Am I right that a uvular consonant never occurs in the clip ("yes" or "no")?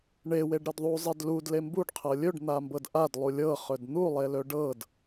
no